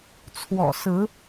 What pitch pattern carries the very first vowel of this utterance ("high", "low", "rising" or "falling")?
low